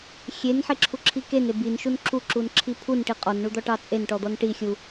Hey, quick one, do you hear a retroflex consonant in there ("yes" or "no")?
yes